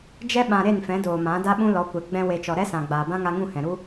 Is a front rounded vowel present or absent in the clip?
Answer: absent